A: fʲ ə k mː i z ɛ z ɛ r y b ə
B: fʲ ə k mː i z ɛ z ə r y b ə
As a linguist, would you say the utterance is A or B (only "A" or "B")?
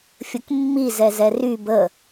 A